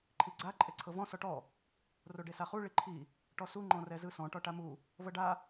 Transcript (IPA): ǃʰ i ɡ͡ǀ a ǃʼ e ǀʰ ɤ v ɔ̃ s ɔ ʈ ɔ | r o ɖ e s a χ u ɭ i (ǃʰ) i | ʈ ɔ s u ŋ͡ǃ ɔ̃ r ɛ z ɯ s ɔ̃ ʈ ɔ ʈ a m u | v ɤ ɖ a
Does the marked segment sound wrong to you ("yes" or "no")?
no